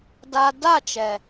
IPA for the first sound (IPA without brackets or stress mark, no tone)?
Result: d